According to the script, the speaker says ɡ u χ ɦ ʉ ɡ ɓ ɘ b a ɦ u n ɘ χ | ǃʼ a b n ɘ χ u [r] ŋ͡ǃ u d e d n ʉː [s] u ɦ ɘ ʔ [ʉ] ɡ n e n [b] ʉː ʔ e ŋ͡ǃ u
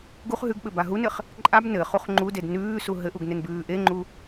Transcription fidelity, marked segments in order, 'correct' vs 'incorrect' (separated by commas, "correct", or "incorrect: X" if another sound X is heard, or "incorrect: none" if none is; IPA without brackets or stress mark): incorrect: χ, correct, incorrect: u, correct